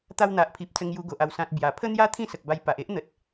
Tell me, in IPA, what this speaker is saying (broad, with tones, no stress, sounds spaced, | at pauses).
t̪ a˧ w n̪ a˨ ʔ pʰ i˨ p̚ t͡s ə˧ ŋ j u˧ ɡ o˨ ʔ a˨˩ w s ã˨ t̚ b j a˨˩ pʰ ə˦ n̪ j a˦ t̪ʰ ĩ˥˧ s ə˨ k̚ b a˧ j p a˨ ʔ e˦ ʔ n̪ ə˨ t̚